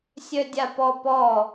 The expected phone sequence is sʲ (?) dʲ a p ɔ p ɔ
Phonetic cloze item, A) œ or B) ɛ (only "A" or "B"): A